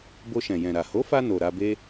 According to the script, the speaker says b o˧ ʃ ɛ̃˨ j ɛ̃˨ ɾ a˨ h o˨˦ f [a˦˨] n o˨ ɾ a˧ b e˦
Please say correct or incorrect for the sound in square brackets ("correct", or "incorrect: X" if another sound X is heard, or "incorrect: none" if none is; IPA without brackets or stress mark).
incorrect: a˧